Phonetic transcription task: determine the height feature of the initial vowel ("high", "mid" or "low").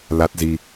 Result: low